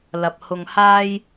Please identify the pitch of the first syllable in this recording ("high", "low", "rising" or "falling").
low